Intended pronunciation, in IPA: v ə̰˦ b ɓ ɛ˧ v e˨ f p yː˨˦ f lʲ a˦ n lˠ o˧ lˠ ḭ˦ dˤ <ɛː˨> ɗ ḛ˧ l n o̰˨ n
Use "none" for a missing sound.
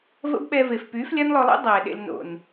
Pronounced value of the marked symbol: ɛː˨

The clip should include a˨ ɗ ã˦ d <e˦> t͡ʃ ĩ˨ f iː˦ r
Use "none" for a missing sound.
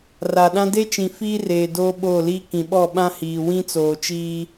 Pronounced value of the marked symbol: e˦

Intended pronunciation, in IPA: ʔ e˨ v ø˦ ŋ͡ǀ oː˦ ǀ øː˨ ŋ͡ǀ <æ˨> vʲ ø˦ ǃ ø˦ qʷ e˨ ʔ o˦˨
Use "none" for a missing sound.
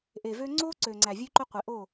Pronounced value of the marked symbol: æ˨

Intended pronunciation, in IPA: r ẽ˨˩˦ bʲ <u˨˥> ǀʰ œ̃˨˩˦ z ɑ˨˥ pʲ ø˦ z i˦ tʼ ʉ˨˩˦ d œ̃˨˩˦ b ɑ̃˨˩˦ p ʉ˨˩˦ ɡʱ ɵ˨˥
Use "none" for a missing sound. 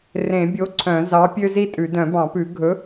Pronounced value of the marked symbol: o˨˥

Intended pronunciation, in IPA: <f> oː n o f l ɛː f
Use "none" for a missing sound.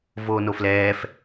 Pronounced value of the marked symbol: v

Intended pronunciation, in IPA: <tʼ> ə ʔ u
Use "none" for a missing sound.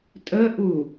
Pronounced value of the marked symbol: tʼ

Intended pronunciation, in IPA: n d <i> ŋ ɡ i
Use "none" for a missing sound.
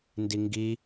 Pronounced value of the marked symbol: i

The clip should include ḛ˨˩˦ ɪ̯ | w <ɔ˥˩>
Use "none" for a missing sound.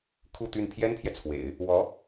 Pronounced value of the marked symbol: ɔ˧˥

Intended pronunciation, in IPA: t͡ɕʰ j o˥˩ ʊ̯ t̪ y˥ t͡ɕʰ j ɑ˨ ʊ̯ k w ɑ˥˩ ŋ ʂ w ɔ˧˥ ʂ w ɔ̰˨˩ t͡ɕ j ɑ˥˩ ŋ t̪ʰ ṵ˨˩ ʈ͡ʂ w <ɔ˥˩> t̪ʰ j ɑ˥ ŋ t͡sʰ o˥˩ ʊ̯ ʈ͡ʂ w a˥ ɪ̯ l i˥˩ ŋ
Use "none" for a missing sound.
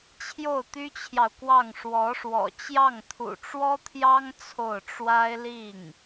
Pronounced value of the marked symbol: ɔ˥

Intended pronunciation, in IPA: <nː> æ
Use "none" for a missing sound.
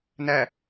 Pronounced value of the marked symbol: n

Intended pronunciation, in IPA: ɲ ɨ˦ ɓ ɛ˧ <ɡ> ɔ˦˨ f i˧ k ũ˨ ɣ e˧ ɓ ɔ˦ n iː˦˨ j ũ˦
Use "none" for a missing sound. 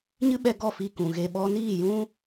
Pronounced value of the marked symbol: ɡ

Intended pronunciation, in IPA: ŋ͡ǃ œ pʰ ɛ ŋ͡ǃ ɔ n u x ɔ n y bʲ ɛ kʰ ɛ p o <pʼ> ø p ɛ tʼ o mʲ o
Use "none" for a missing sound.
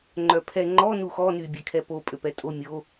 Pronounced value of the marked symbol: pʼ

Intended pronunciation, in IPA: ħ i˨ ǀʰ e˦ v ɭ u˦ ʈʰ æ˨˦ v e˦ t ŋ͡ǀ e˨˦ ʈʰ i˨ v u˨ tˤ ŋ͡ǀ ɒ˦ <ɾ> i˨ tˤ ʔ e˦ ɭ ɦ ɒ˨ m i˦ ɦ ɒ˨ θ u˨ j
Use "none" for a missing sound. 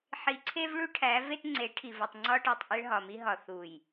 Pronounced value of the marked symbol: ʈ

